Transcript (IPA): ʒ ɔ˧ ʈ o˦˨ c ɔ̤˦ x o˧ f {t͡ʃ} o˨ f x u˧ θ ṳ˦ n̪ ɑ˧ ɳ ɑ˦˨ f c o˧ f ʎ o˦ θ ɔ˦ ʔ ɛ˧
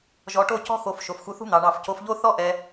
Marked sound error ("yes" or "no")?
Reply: yes